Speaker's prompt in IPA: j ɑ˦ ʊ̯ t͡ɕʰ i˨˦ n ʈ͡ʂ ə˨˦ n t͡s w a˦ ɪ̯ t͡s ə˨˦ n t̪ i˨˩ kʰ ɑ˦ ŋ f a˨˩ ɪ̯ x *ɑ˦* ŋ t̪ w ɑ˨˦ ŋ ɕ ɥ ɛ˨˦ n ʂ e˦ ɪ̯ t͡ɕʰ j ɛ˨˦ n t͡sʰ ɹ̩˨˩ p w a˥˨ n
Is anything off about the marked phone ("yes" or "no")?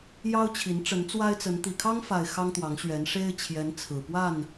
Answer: no